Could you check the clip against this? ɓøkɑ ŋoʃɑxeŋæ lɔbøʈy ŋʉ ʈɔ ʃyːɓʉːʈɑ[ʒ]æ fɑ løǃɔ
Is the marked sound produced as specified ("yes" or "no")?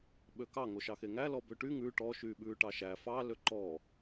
no